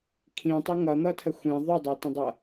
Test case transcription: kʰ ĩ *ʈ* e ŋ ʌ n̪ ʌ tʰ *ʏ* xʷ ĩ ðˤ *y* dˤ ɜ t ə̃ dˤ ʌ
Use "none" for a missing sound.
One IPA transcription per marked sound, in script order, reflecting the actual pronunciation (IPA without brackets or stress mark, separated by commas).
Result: tˤ, ə, y